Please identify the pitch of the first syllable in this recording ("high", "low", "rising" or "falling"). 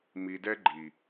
low